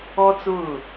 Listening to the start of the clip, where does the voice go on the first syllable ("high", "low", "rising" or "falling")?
high